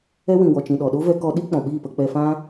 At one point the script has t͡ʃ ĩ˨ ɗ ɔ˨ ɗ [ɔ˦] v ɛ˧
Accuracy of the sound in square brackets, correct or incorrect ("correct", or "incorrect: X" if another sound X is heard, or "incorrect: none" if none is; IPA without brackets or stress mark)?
incorrect: o˦